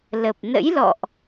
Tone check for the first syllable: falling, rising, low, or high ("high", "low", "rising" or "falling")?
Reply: low